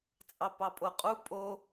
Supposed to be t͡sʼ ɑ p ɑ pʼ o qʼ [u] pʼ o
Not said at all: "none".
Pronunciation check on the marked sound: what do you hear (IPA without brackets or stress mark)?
u